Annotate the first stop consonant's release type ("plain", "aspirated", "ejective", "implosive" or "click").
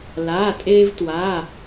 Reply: ejective